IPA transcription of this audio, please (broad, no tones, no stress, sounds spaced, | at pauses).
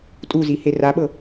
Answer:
tʼ u z i h e r a ɓ ɤ